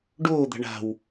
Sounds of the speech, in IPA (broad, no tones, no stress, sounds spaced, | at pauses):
ɖ oː d̪ a̤ ɳ a̤ w